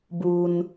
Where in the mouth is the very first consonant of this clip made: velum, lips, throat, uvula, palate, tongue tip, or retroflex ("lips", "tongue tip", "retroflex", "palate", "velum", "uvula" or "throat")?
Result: lips